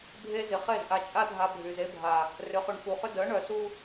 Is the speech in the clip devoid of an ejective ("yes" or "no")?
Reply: no